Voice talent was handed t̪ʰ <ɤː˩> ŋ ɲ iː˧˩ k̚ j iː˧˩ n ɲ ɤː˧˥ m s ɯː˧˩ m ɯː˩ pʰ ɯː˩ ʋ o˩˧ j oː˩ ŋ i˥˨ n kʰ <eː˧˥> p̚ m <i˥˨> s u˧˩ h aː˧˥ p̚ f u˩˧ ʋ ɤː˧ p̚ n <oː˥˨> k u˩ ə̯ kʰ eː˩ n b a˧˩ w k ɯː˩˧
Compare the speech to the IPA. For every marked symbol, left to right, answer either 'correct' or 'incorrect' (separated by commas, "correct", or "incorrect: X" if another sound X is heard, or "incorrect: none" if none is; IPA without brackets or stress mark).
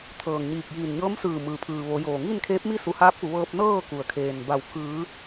correct, correct, correct, incorrect: ɤː˥˨